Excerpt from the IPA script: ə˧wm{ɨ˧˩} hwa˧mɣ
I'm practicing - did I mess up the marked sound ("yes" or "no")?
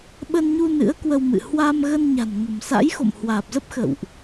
yes